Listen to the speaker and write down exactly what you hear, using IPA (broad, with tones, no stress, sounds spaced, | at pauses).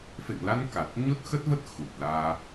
f ḛ˧˨ ŋ l a˧ n k a˨˩ t̚ ɲ o˦˥ t̚ x ə˦˥ t̚ v ə˦˥ t̚ x u˨˩ t̚ l aː˧